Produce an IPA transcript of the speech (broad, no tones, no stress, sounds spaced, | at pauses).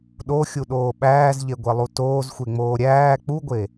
ɗ o xʲ u ɗ oː ɓ æː z ʎ e ɡʷ e lˠ u t oː z xʷ e ŋ͡m oː ɾʲ æː k͡p u ɡʷ e